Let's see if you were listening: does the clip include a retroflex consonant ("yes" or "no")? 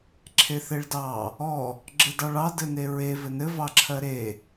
yes